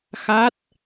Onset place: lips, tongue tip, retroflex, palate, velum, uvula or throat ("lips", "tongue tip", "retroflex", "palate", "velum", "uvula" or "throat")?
velum